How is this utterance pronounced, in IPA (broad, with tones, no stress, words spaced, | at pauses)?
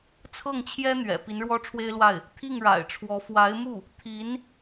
t͡sʰɤ˥˩ŋt͡ɕʰjɛ˥n̪ɥɛ̰˨˩ pi˧˥nɻwɔ˥ʈ͡ʂʰwe˥ɪ̯lwa˥˩ɪ̯ | t̪ʰi˥˩ŋɻa̰˨˩ɪ̯ʈ͡ʂʰwɔ˧˥ fwa˧˥ɪ̯mu˥˩ | t̪ʰi˧˥n